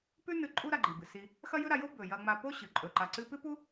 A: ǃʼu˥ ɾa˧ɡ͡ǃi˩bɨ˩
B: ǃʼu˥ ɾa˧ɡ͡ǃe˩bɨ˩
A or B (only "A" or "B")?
A